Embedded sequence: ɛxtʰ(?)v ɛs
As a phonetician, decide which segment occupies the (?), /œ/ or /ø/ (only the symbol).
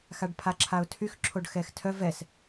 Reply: œ